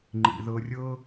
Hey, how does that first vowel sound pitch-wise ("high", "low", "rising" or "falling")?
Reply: low